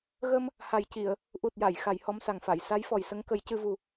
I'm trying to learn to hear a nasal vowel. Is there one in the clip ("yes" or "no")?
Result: no